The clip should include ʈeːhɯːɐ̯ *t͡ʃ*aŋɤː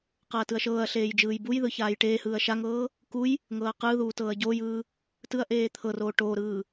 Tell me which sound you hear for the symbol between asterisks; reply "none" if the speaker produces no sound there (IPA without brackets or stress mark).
ʃ